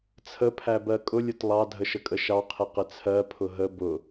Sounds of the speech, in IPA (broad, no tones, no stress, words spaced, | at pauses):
t͡sʰəpʰæbɜ kʼʊlʲʊt lˠɑdʱəʃəkʼə ʃɑqʰɪqɪ t͡sʰɜpʰʊ ɦə bʊ